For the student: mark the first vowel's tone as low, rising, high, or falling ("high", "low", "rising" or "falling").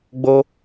high